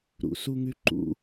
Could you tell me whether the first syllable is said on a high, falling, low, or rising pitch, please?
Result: low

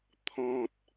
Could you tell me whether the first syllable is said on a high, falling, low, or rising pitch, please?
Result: low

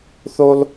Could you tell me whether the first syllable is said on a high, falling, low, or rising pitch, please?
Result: high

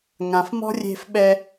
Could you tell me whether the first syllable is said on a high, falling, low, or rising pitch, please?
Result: low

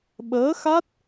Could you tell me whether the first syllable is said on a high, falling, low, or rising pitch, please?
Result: rising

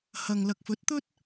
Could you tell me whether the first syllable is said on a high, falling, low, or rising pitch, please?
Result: low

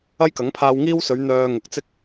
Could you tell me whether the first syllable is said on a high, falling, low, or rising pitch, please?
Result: high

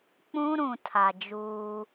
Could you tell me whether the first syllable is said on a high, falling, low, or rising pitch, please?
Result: high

